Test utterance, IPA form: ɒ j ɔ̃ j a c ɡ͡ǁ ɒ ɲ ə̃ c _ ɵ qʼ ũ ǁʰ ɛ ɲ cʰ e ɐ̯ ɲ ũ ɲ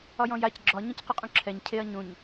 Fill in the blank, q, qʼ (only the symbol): q